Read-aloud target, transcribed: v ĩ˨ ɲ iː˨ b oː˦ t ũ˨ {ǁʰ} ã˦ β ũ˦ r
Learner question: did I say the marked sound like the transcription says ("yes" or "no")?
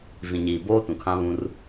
no